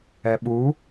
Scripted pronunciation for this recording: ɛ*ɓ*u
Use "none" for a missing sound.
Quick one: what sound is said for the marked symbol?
ɓ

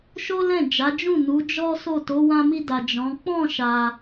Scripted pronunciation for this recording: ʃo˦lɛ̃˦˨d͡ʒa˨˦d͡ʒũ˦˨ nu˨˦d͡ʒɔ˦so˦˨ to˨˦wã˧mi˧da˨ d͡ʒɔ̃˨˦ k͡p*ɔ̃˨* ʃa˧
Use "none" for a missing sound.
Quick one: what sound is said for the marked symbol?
ɔ̃˦˨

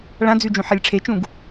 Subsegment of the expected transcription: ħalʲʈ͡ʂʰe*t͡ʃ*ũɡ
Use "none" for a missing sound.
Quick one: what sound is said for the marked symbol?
t͡ʃ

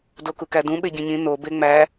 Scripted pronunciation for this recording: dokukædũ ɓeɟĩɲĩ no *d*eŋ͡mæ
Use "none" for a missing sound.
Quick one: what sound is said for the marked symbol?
b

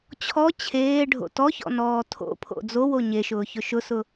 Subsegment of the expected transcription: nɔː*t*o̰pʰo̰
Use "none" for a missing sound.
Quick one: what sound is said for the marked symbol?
tʰ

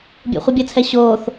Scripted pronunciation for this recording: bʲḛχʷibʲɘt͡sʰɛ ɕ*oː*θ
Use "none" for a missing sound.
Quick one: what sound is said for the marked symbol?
oː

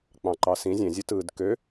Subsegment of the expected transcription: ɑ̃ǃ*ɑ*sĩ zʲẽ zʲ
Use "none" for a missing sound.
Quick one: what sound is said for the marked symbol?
ɑ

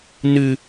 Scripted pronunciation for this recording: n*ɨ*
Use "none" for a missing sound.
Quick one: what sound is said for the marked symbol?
ɨ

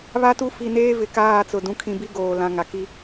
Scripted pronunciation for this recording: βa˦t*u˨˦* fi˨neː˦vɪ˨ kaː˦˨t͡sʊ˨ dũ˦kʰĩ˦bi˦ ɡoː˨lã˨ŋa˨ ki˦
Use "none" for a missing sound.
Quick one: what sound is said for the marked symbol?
u˦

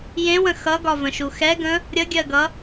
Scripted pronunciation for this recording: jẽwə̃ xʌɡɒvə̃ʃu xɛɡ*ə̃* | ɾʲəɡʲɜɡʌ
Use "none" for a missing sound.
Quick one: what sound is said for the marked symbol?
ə̃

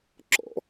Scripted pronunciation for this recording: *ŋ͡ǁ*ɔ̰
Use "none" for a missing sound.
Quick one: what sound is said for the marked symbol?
ǁ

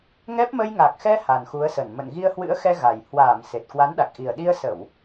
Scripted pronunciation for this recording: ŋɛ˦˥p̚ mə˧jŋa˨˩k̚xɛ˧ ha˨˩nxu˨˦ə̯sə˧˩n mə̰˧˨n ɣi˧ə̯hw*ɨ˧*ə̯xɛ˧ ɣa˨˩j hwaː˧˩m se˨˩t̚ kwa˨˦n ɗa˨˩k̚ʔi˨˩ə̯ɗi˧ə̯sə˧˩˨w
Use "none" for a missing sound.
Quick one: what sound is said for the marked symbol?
ɨ̰˧˥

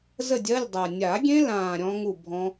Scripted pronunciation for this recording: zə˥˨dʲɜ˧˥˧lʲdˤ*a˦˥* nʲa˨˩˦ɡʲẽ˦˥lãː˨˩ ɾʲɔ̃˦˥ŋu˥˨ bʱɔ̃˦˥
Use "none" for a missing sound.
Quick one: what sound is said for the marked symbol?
a˨˩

